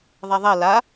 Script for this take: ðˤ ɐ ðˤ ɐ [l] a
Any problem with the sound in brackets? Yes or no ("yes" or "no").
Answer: no